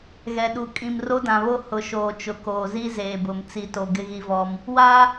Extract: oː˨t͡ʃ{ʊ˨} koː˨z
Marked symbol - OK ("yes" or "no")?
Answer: yes